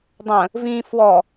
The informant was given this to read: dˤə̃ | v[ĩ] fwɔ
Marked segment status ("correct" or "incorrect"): correct